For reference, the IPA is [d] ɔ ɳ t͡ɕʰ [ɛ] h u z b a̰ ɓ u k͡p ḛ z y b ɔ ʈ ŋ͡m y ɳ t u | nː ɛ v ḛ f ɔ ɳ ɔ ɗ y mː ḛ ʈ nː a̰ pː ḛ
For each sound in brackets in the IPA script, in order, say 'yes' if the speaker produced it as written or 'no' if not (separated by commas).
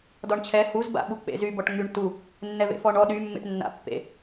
yes, yes